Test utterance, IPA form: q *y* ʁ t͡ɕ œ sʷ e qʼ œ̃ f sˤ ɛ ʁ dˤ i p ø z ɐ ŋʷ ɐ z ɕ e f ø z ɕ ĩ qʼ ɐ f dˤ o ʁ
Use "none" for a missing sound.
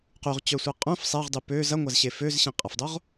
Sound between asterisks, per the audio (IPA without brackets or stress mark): y